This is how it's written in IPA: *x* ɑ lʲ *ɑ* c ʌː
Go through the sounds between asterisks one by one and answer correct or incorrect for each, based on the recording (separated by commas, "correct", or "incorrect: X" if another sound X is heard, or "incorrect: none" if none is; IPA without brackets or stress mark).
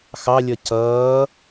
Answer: correct, incorrect: ʌ